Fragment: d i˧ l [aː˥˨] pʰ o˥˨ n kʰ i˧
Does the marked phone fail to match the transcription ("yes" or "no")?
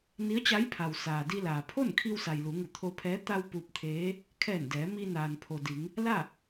yes